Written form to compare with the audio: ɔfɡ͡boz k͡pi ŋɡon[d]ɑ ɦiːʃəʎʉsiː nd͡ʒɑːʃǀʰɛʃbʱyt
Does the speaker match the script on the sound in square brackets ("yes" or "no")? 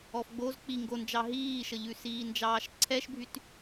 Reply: no